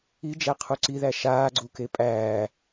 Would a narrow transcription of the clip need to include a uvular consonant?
yes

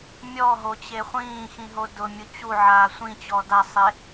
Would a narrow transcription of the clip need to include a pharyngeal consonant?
yes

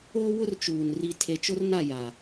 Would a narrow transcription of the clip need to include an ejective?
no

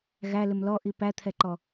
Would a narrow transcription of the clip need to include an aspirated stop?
yes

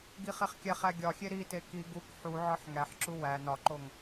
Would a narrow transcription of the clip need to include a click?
yes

